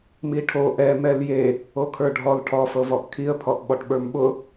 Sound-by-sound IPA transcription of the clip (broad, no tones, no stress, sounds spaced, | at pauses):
m i ʈʰ o ʔ ɛ m ɛ l j e | o kʰ ə˞ ɖʱ ɔ l ʈʰ ɔ f ɤ v ɔ ʔ kʰ i ə̯ pʰ ɔ ʔ ɓ ɔ ʈ ɓ ə˞ m ɓ ʊ